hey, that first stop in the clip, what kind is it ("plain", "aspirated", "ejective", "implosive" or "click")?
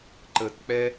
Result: click